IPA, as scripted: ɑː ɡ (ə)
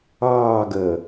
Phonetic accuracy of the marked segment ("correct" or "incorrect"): incorrect